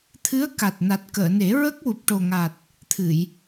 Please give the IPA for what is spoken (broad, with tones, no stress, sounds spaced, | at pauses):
t̪ʰ ɨ˧˥ ə̯ k a˨˩ t̚ n a˨˩ t̚ k əː˨˩˨ n e˨˩˦ ɹ ə˦˥ k̚ w u˨˩ p̚ ʈ o˨˩ ŋ a˨˩ t̚ | t̪ʰ ɨ˨˩˨ j